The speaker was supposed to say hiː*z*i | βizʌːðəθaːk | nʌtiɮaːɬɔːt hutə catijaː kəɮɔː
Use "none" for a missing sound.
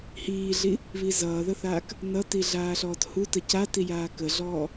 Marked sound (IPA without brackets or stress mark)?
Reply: ɮ